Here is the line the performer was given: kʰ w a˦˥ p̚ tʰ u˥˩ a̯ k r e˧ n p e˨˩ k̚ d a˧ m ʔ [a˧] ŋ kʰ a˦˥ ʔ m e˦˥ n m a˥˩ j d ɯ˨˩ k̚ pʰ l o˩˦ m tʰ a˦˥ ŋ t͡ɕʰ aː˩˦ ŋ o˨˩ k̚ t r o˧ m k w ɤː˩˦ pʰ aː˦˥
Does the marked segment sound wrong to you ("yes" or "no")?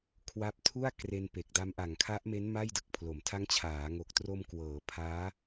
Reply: yes